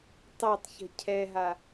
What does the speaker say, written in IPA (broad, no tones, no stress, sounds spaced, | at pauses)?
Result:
tˤ a tˤ ç ə̤ cʰ ɛ ɦ a